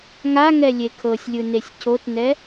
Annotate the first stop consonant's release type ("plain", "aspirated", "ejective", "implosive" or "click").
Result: aspirated